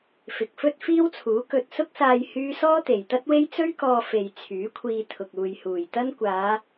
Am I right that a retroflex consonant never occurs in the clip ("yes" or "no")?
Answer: yes